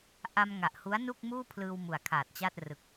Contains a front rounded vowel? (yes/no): no